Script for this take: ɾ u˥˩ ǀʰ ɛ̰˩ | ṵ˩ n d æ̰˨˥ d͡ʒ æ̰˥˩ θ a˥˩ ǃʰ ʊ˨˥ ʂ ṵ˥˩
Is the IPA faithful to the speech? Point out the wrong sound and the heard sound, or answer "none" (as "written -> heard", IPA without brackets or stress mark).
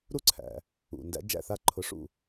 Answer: ɛ̰˩ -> æ̰˩